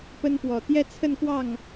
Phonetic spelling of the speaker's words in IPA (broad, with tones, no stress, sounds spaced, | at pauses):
p ə˥ n p w ɔ˨˩ t̪ j ɛ˥˧ t͡sʰ ə˥˧ n k w ɑ˥˩ ŋ